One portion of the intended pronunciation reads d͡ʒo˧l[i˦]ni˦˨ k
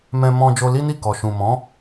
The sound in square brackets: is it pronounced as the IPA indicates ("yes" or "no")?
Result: yes